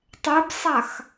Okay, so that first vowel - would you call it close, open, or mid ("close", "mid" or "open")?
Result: mid